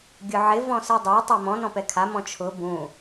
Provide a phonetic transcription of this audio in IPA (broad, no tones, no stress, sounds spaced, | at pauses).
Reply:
ɡʲ ʊ ʕ ɪ v ɔ̃ s i dˤ a tˤ a m ɔ̃ n ɔ̃ p ɛ kʰ a m ɔ̃ t͡ʃʰ ʊ b ũ